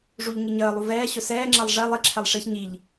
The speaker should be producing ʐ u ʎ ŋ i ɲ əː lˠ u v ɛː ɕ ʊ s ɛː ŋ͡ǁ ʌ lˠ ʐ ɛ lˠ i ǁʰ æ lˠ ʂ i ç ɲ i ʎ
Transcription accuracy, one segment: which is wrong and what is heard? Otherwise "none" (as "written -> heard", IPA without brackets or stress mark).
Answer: æ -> ɛ